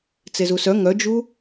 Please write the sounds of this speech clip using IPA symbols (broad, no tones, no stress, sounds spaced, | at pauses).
t͡s e z u s œ ŋ œ d͡ʒ u